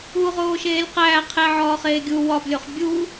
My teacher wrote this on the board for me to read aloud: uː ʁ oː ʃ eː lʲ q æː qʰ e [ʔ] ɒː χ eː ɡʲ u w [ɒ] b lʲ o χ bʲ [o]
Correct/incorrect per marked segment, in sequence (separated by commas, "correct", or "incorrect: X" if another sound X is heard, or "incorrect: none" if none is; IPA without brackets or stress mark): incorrect: ʕ, correct, incorrect: u